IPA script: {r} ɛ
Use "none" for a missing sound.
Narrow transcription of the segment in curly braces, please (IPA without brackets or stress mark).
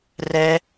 r